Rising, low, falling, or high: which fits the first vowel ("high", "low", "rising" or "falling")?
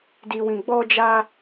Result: low